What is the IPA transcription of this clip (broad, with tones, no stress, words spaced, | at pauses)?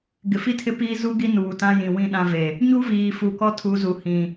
ɡɪ˨fi˦ tʰɪ˦piː˦ zu˦ ɡi˦nuː˨tã˦jĩ˨ wĩ˦˨ɗã˦ve˨ | ɲu˦viː˨ fu˨kɔ˦ tʰu˨˦zu˨hĩ˨